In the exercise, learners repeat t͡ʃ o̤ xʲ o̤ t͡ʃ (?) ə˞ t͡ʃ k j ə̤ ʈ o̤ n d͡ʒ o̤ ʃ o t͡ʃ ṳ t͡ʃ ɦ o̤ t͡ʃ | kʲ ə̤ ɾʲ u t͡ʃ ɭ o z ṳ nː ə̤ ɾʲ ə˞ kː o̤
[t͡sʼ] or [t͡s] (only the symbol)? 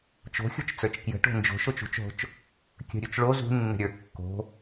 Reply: t͡s